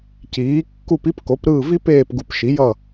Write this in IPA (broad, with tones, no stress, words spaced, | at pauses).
ciː˩˥ kːu˦˨pi˥pko˩˥p ɾɯː˦˨vi˥peː˦˨p ɡu˨pʃi˩˥jʌ˦˨